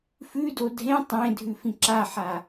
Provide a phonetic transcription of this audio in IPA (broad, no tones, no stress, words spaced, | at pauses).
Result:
fʉdo dʱẽ tˤẽ dʱʉfĩǁaħa